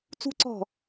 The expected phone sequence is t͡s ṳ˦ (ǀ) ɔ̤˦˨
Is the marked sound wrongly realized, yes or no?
no